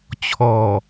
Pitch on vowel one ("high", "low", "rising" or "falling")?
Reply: low